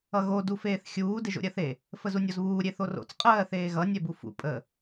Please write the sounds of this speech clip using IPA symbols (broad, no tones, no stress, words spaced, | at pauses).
ʌɣo dufeːθxʲuː deʒo̰ɾʲɜθe | fəzunʲozβuː ɾʲeθoro̰t͡s qʼɜːθeːɣʌ nʲɛbufṵ pʼə